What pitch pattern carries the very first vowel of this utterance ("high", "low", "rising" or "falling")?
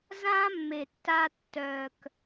high